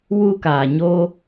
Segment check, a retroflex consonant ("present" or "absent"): absent